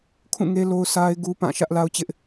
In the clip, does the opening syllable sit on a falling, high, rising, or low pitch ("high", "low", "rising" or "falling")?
falling